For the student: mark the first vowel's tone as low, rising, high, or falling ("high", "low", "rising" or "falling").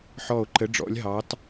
falling